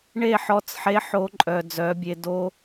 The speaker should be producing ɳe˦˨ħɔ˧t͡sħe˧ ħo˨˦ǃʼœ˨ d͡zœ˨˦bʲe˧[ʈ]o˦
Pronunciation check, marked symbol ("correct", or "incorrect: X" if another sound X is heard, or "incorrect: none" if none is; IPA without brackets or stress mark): incorrect: d